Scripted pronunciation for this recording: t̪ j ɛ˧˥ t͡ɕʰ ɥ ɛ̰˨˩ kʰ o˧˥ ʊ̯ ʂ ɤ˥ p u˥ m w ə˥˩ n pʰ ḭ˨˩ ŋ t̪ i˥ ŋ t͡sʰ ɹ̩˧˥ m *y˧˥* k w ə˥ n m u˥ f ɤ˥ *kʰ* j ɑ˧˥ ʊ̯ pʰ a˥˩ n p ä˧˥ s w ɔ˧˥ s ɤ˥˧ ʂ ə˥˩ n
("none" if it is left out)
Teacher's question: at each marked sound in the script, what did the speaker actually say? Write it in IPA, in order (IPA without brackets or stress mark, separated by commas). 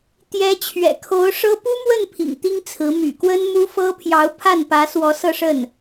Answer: y̰˨˩, pʰ